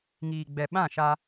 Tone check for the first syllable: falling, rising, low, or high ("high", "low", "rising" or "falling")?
low